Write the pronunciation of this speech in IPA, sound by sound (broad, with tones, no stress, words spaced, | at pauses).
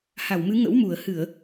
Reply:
ha˧˩wmɨ˨˦ŋə̰˧˥wmu˧˩ə̯ hɨ˧˩˨ə̯